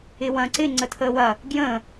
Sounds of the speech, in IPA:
ɪwɐ̃ ǀɪ ŋ͡ǀətʰəːwɐ | ɡjə̃

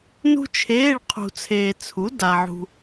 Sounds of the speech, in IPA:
nṳ˥t͡ʃʰeː˧˥˧ɭ qʰṳ˨t͡sʰeː˨t͡sʰu˩˥ da˨ʕṳ˨

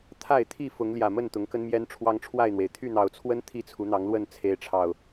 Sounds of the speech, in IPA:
t̪ʰa˥˨ɪ̯t̪ʰi˥˨ fʊ˨˦ŋljä˨˩mə˥˨n t̪ʊ˨˦ŋkə˦nmjɛ˦n ʈ͡ʂʰwɑ˦ŋʈ͡ʂʰwa˥˨ɪ̯n̪we˩ɪ̯ t̪ʰy˥˨n̪ɑ˨˩ʊ̯t͡sʰwə˦n t̪ʰi˥˨t͡sʰu˨˦n̪ɑ˨˦ŋlwə˥˨n t͡sʰe˨˦ɪ̯ʈ͡ʂʰɑ˨˩ʊ̯

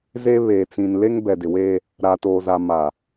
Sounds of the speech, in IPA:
ze˦βeː˨ t͡sĩ˨nle˦ŋ bɛ˨dɪ˨weː˦ | ɾa˨toː˨za˨ ma˨

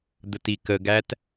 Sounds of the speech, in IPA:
d̪ətikəɡæt

